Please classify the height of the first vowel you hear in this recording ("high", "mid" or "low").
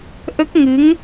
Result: mid